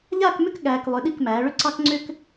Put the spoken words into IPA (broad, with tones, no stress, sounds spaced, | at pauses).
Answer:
ʎ aː˥˧ k m ʏ˥˧ k ɠ æː˧ k lˠ ʏ˩˧ ɗ i˧˩ k m æː˩˧ ɭ ʏ˥ ǀ ɑ˥ k ŋ͡ǀ ʏ˥ k